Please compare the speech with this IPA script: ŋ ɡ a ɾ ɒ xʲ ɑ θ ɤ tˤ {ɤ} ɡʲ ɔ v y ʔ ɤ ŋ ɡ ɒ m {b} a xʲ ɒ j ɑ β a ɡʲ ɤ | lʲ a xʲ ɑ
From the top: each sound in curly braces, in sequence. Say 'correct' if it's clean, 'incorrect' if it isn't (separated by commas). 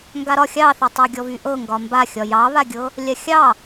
correct, correct